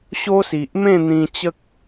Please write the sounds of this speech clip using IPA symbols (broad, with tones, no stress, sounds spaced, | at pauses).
ɕ o˦ s i˨ ʔ m ẽ˥˧ n̪ ĩ˧ t͡ɕ ə˦ k̚